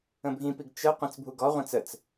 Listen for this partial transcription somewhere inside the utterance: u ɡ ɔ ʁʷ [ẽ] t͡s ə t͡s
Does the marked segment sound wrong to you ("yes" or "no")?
no